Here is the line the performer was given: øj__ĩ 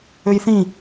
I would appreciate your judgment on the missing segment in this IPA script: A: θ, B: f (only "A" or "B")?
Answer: A